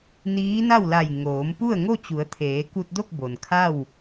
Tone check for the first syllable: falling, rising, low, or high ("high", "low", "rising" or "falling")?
rising